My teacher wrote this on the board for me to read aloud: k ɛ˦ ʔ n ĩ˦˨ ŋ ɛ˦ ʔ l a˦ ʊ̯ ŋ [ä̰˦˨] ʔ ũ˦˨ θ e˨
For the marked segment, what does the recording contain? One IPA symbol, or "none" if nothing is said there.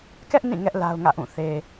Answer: ä̰˦˨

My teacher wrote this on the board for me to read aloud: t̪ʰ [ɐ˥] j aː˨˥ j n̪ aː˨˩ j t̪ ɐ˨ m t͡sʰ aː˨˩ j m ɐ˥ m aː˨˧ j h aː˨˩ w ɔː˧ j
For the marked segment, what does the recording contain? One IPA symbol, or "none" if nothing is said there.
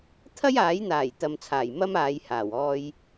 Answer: ɐ˥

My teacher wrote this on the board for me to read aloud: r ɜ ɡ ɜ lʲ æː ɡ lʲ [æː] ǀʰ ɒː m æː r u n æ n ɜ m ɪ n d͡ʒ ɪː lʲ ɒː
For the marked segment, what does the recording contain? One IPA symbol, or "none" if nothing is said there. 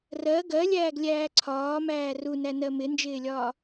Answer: æː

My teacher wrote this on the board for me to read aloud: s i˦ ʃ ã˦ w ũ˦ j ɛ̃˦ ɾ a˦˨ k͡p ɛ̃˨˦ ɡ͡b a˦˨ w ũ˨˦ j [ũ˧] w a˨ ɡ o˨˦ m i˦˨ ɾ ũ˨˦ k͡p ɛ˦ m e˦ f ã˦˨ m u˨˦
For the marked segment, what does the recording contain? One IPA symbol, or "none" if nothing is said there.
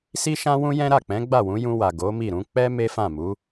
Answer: ũ˧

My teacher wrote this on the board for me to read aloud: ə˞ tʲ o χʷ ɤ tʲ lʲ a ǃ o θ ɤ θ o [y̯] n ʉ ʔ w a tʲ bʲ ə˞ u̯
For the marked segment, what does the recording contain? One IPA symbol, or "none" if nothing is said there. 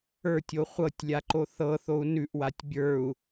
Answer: u̯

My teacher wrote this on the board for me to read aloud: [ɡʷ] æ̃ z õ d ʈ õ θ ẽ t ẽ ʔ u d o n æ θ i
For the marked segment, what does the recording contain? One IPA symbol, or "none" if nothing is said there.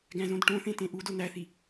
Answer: ɡ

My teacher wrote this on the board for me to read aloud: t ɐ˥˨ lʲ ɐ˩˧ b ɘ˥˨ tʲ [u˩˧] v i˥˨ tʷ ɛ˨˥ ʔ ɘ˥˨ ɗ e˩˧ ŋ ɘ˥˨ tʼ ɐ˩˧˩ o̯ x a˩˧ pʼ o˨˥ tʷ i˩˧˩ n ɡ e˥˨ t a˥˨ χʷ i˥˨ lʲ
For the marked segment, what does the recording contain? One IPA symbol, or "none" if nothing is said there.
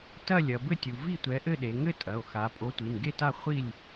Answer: u˩˧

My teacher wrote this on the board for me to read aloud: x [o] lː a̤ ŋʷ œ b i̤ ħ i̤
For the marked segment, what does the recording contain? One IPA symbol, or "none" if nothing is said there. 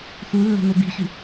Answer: u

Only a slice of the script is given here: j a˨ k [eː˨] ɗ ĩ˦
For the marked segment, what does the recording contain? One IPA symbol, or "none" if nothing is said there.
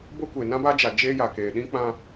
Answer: eː˨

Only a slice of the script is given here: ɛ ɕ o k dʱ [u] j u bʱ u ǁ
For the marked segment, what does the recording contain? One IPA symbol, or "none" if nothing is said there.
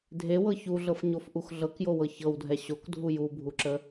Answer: u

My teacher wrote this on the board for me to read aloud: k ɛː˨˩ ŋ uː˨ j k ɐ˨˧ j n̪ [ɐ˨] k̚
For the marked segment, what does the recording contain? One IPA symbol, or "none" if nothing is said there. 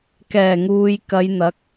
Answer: ɐ˨˥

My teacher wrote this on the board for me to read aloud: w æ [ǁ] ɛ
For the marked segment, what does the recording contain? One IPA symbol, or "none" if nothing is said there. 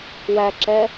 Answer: ǁ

